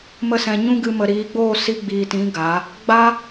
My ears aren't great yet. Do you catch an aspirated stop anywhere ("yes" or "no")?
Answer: no